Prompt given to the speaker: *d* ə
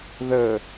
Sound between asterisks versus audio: incorrect: ð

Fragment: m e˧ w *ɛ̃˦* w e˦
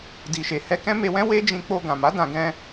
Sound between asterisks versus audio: correct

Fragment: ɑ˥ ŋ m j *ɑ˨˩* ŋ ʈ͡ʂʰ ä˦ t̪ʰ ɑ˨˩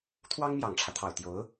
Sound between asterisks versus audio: correct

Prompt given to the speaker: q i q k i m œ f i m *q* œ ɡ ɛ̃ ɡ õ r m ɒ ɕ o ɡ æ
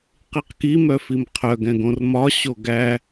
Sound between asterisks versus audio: incorrect: qʰ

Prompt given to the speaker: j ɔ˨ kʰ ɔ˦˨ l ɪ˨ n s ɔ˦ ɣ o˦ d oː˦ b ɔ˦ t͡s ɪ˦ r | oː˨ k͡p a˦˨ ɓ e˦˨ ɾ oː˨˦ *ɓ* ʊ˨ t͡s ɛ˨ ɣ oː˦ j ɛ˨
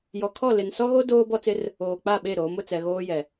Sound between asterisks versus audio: incorrect: m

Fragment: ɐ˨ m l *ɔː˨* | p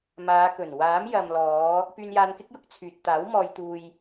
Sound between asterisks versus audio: incorrect: ɔː˨˧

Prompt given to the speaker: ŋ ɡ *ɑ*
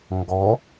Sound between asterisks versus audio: incorrect: ɔ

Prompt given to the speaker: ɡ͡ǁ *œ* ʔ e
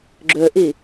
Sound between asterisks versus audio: correct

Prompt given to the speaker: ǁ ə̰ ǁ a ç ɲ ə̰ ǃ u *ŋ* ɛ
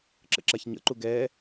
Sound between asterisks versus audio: incorrect: ɡ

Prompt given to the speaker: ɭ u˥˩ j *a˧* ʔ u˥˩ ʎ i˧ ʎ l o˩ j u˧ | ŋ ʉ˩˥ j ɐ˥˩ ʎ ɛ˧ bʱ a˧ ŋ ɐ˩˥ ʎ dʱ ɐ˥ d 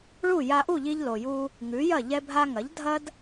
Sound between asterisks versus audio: correct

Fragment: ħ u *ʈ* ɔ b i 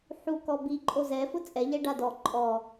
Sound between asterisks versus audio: incorrect: k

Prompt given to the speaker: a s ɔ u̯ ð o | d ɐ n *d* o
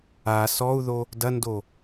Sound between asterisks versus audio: correct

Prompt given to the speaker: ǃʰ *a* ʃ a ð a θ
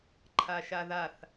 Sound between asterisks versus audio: correct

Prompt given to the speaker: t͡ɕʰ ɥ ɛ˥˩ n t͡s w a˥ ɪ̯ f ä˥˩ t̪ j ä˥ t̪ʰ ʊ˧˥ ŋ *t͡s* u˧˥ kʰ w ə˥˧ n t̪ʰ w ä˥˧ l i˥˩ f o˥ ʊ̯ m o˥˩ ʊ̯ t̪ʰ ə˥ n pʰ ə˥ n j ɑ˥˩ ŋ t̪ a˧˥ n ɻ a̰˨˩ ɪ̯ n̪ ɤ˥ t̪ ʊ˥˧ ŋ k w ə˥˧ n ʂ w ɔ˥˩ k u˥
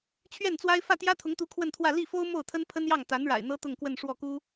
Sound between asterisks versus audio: incorrect: t̪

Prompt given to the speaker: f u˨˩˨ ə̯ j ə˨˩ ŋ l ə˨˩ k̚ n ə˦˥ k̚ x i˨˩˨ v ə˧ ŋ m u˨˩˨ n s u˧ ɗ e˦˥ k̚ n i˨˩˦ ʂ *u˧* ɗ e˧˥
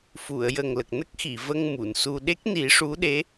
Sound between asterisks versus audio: incorrect: u˧˥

